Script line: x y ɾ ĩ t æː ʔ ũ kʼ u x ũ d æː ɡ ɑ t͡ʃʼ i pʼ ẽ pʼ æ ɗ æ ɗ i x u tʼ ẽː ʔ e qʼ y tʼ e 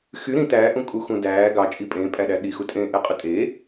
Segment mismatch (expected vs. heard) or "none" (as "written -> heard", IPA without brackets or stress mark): none